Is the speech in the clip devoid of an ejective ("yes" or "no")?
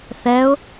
yes